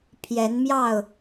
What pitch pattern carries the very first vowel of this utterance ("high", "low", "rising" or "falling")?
rising